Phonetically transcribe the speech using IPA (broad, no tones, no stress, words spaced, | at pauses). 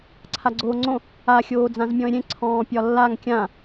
ǀʰaɡ͡ǀoːŋ͡ǀõ | a xʲoːd͡zãzmʲɔ̃ɪ̯ɾʲẽ ǀʰɔ̃ːpʲɒlːaŋ kʲã